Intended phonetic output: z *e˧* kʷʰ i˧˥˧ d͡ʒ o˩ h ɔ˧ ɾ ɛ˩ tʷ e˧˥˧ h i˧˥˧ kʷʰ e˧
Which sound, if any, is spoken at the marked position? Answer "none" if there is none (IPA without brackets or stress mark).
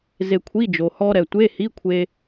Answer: e˧